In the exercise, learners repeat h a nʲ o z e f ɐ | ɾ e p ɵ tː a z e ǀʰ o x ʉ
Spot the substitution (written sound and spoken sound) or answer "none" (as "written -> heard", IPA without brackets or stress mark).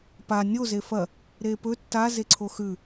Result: h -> p